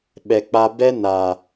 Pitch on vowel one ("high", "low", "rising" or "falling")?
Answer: low